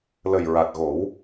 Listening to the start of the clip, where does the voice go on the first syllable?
low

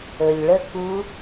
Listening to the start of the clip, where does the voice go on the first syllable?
low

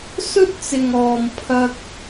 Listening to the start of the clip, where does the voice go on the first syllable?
high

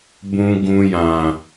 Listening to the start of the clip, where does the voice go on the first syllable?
low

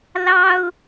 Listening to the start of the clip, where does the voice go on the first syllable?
high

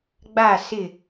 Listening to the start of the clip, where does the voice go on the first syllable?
falling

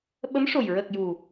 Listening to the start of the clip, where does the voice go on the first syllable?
rising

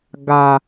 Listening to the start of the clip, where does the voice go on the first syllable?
low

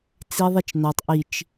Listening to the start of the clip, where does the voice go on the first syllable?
high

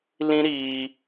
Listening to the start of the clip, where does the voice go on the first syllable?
high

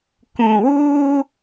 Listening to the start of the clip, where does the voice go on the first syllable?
low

